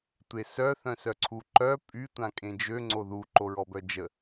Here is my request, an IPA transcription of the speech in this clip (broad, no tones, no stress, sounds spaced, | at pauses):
tʷ e s œ θ œ̃ s œ ǀʰ u ǃ œ pʼ y tʷ ã kʼ ẽ d͡ʒ ø ŋ͡ǀ o ð u ǃ o ɹ ɔ b œ d͡ʒ ə